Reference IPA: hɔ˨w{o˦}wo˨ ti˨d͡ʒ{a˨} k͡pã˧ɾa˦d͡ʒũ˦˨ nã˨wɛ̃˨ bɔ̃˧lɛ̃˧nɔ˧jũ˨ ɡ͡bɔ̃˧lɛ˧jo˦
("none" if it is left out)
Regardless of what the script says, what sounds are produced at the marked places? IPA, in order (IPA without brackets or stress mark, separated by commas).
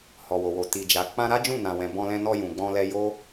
o˨, a˨